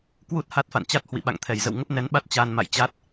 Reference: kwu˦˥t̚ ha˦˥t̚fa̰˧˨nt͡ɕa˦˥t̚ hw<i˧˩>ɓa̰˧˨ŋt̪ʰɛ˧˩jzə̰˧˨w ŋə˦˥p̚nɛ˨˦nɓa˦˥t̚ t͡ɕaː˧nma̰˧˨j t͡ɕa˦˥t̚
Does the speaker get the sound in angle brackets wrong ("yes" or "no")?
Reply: yes